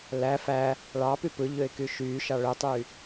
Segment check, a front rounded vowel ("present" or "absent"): present